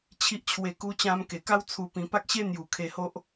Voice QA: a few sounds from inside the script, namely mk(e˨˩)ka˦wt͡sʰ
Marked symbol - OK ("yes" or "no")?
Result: yes